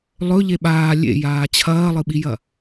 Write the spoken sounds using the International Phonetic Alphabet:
lˠɵ ʎeɓaː lʲḛjaː t͡ɕʰɐːlˠɨɓijɐ

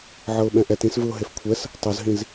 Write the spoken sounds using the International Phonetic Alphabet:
ʕɤʊ̯ɓɛ̃ʔɛt ĩsvɯʊ̯ ɦefkʷʰɛs | tˤozɦĩz

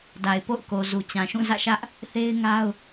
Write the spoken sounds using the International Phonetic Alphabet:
da˨ɪ̯po̰˦˨ʊ̯ko˨zu˨ t͡ɕã˨ʃũ˦˨zä̰˦˨ʃä˦ʔ | θe˦ɪ̯ŋa˦ʊ̯

